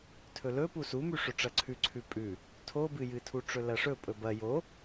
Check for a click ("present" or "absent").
present